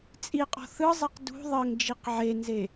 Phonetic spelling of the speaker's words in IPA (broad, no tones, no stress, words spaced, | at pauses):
t͡sʼiqʼɔ̤ θɯzˤiq dṳ ðˤɤŋd͡ʒiq ʕenze